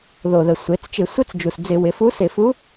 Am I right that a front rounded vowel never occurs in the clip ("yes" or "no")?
yes